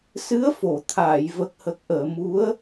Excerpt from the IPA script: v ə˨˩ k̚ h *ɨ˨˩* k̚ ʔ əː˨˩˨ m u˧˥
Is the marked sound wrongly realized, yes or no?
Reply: yes